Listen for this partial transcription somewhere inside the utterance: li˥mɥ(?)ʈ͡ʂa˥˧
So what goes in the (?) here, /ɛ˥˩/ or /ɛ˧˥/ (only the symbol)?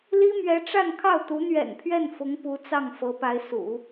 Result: ɛ˧˥